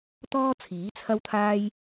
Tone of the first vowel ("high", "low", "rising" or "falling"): high